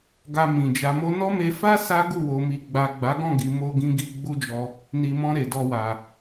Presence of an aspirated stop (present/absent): absent